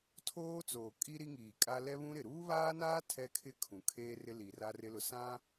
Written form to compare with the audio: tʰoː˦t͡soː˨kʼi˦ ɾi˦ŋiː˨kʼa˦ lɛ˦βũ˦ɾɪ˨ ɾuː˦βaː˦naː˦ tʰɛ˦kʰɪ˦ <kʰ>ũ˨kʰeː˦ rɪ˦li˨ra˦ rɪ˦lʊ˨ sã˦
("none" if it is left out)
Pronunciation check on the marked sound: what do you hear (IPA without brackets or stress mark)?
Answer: kʰ